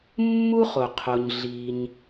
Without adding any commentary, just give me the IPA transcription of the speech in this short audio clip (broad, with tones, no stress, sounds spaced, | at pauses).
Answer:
mː u˥ χ o˩ qʰ o˩ ɲ ɮ i˩ ɲ